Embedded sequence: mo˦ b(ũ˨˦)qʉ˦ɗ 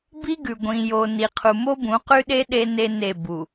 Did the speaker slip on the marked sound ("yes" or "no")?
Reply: no